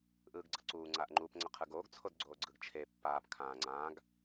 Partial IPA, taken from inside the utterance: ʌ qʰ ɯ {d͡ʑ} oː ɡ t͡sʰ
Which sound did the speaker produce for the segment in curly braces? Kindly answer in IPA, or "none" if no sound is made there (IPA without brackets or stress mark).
ɡ